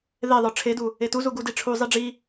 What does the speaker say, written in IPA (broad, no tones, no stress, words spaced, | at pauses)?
ðeðˤə˞ ʈ͡ʂʰedu | etuzu ɡudiʈ͡ʂʰuzˤi ɖ͡ʐi